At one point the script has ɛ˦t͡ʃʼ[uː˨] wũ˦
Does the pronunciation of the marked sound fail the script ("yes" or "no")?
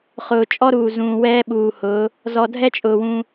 yes